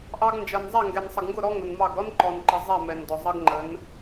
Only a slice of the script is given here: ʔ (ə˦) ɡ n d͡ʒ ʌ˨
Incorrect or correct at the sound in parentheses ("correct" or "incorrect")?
incorrect